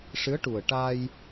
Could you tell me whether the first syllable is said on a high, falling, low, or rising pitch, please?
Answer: rising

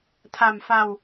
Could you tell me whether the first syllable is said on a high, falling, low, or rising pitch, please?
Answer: low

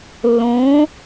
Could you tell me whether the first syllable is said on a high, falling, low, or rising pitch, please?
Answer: rising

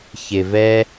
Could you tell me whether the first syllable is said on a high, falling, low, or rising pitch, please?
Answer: low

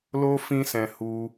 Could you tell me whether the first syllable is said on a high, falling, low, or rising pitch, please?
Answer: high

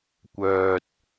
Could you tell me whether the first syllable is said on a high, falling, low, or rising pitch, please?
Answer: low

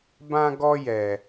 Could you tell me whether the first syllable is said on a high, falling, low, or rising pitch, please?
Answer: high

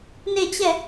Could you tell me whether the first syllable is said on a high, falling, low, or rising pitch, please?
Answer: falling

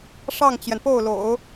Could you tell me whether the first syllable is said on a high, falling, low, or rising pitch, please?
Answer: falling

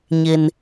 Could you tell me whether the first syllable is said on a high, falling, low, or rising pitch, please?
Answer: low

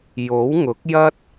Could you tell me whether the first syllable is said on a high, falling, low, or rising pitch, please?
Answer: rising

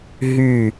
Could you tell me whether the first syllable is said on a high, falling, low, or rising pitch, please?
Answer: falling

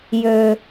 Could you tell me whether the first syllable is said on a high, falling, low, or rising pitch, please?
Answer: high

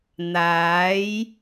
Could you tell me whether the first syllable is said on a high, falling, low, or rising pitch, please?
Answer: rising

